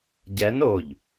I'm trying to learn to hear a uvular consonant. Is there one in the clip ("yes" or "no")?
no